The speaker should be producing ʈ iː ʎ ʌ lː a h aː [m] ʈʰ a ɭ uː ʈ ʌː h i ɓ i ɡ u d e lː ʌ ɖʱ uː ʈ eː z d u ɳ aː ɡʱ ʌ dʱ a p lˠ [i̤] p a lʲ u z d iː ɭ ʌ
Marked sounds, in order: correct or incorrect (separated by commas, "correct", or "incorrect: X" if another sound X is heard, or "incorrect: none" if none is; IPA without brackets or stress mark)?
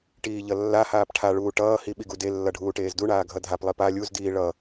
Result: incorrect: p, incorrect: i